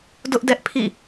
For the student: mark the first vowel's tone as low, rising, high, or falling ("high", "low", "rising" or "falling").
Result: high